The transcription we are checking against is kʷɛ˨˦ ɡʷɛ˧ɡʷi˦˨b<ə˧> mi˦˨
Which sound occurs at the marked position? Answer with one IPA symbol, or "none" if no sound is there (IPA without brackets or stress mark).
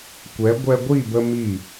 ə˧